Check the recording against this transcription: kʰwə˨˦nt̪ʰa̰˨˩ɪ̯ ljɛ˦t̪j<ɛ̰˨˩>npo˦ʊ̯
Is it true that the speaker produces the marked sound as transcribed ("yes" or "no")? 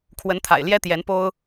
no